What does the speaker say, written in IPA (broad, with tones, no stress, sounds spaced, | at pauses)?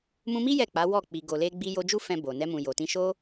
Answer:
m ũ˧ m i˦ j ɛ˦˨ k͡p a˨˦ w ɔ˦˨ k͡p i˨ ɡ o˨ l e˧ ɡ͡b i˧ j o˧ d͡ʒ u˦ f ɛ̃˧ b o˨ n ɛ˧ m ũ˨ j o˨ t ĩ˧ ʃ o˦